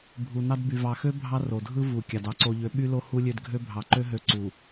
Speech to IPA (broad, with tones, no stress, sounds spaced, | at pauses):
bʱ u˨ n ɑ˦ d b y˨ v ɑ˨ x ø˦ bʱ ɑ˦ r o˨ dʱ ɯ˦ v u˨ kʲ ɑ˨ d ɑ˦ ǀ o˨ ʎ ø˨˦ ɓ y˦ l o˦ h u˦ lʲ ø˦ d ɡʱ ø˦ bʱ ɑ˨ ǃ ø˦ ɦ ø˨˦ ǀ u˨